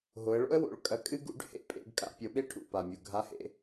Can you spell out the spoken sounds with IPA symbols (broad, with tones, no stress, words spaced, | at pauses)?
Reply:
ɦo˩˧ə̯ɭo̰˥ə̯wo̰˩˧ɭ kʼɐ˩˧kʼɨ˧ɡṵ˩˧ɖ hḛ˧pʼḛ˩˧ɡ kʼa̰˧pʲo˩˧ɓe˥ ʈʰṵ˩pa˩mʲu˩ ɡʱa˧˥hḛ˧